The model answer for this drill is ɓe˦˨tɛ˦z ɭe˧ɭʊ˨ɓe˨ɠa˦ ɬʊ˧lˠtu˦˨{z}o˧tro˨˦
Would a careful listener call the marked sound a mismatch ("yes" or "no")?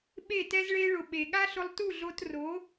yes